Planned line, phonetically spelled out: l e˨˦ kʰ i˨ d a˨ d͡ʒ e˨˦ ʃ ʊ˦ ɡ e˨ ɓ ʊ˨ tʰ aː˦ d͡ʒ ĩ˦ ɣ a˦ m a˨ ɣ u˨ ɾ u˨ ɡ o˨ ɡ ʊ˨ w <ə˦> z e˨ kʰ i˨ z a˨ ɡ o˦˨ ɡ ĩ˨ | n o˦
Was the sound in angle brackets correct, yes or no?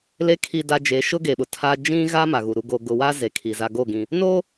no